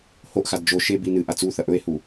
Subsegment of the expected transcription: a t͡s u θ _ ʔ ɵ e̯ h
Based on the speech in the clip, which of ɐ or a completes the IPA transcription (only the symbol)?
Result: ɐ